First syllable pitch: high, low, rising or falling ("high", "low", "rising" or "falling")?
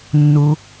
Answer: low